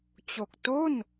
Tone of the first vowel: low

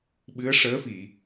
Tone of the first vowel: rising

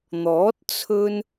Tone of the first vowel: rising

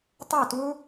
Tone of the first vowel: falling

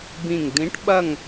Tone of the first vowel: low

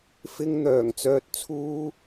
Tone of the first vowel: high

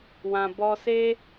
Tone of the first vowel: low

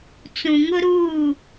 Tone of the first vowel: low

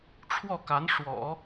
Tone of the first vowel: falling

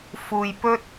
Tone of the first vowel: low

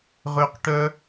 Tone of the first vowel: high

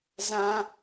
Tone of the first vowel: high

